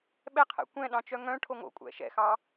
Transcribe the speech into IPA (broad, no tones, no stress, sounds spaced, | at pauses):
ɓ ɛ qʰ ɛ̰ kʷ ɛ̃ ɗ ɑ̃ t͡ʃ œ ŋ œ̃ ʈʰ o ŋ o̰ kʷʼ ɛ̰ ʃ ɛ̰ x ɑ